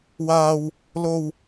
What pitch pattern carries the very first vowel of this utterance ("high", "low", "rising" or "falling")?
high